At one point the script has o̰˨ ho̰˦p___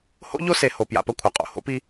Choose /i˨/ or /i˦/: i˦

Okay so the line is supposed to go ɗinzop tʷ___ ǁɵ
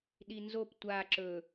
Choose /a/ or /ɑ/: a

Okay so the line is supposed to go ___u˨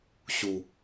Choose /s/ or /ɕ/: ɕ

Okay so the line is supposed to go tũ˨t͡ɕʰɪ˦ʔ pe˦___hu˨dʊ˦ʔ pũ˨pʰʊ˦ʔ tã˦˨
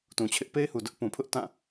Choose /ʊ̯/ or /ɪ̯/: ɪ̯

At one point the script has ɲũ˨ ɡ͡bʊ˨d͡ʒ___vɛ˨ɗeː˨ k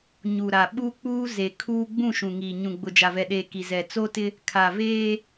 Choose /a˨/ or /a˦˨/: a˨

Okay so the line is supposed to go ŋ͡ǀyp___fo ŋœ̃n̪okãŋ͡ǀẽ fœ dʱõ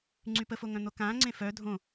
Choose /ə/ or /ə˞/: ə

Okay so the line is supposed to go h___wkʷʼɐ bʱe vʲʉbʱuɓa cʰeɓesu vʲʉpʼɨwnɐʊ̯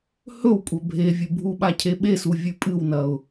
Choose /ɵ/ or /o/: ɵ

